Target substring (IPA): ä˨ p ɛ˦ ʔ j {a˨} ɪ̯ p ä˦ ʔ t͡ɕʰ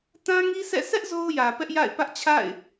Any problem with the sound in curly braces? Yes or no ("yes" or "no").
yes